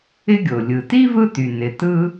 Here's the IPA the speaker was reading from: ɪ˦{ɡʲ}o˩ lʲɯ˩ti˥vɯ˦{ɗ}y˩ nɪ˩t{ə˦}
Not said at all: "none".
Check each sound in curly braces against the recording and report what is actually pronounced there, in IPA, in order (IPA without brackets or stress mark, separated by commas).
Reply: ɡʲ, t, ɯ˦